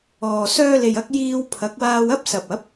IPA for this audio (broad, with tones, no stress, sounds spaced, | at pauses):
ɔː˨ s œː˧ l e˨ j ɐ˧ k̚ j iː˧ w pʰ ɐ˨˥ k̚ w aː˧ w ɐ˥ p̚ s ɐ˨ p̚ ɐ˨˥ p̚